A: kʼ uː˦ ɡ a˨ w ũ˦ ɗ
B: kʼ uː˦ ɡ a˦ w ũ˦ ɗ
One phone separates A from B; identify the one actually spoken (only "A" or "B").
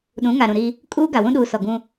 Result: A